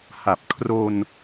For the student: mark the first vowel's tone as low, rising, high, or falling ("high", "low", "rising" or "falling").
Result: low